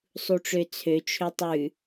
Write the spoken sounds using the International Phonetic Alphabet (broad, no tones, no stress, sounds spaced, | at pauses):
sˤ u ʈ͡ʂ ø t͡sʰ ø t͡ʃʰ ø tˤ ʉ